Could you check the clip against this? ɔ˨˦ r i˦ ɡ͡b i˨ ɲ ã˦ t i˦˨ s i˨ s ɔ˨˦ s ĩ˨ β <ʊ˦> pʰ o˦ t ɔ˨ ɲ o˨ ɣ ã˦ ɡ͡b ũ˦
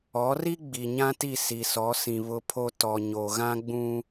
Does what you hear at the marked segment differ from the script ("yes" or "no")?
no